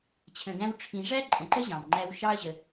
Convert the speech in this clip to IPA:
t͡ɕʰ ə̃˨ ɡ æ̃˦ w ʈ͡ʂʰ ĩ˨ ʐ æ˥ ǃʼ ə̃˨ ǃ ə˥ ʑ ɑ̃˩ m ŋ͡ǃ æ˦ w ʃ ɑ˦ ɐ̯ ʑ ə˨

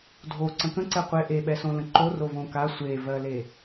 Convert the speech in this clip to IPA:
dʱ o ǀ ə̃ k ə̃ ǀ ɛ qʷ e ʔ e ɓ ɛ s õ l ə̃ ǃ o r o v õ k a sʷ e v ɜ l e

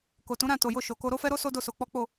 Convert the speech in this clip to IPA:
k o˨ t ũ˨˦ ɾ ã˦˨ t o˨ j o˧ ʃ o˨ k o˧ ɾ o˦ f ɛ˦ ɾ o˦ s o˦ d o˦˨ s o˧ k͡p ɔ˦ k͡p o˦˨

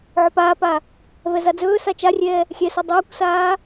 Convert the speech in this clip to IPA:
ʕ ɵ p aː p a | v ɛ z a d͡z ɵː s a t͡ʃ a rʲ ɛː | xʲ ɛ s ɵ dˤ ɵː kʷ s aː

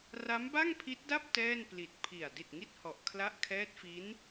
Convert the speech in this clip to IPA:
r a˦˥ m b a˥˩ ŋ pʰ i˦˥ t̚ d a˥˩ p̚ t ɛː˥˩ n p l i˨˩ t̚ pʰ i˨˩ a̯ d i˨˩ t̚ ŋ i˦˥ t̚ h ɔ˨˩ ʔ kʰ l a˦˥ ʔ kʰ ɛː˦˥ t̚ f i˦˥ n

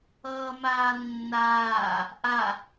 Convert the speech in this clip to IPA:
ʌː m aː nː aː | ʔ a

